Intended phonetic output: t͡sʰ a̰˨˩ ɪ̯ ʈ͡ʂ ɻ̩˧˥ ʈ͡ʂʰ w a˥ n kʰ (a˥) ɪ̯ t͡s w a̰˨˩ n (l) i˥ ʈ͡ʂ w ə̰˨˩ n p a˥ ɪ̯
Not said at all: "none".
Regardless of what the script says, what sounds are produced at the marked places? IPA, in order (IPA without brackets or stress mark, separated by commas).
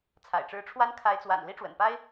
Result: a˧˥, l